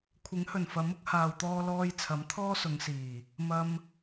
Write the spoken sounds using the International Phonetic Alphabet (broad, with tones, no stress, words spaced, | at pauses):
kʷʰɪ˨˥ŋhɵ˨˩nfɐ˨˥m ʊ˧k̚haː˨wt̪ɔː˧lɔː˧j t͡sʰɐ˨˥mt̪ʰɔː˥sʊ˨˧ŋsiː˨˩ | mɐ˧m